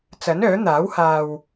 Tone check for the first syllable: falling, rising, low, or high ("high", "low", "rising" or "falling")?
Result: rising